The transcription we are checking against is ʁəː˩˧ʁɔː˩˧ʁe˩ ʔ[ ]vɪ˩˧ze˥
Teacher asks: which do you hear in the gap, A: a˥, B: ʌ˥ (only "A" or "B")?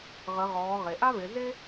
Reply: A